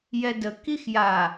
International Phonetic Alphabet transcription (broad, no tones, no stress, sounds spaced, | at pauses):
j ɛ d ə k i x j a